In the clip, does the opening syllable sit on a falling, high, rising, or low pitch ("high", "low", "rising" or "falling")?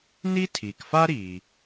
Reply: high